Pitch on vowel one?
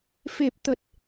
low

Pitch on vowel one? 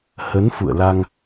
rising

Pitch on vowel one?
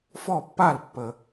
falling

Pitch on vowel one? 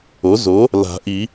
rising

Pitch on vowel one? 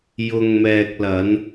low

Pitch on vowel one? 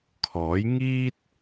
rising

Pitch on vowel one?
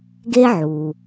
high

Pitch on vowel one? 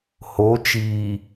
rising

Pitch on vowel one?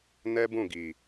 high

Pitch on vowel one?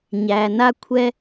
low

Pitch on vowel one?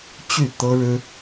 falling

